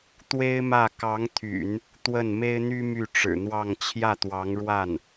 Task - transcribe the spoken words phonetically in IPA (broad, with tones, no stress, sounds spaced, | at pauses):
t̪ w e˥ ɪ̯ m ä˥˩ k ɑ˧˥ ŋ t̪ʰ y̰˨˩˦ n | t̪ w ə˥˩ n m e˥ ɪ̯ n̪ y˥ m y˥˩ ʈ͡ʂ ɻ̩˨˩ n̪ w ɑ˥˧ ŋ t͡ɕʰ j ä˥˩ t̪ w ɑ˧˥ ŋ ɻ w a˥˩ n